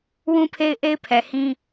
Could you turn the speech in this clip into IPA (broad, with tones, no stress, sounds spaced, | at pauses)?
w ũ˦ pʰ e˦ ɪ̯ ʔ e˦ ɪ̯ pʰ ɛ˨ h ĩ˦